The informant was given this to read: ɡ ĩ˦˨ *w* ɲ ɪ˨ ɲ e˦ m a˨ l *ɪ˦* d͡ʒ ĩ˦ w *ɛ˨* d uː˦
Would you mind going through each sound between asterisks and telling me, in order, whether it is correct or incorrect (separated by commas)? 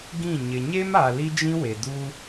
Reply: incorrect, incorrect, incorrect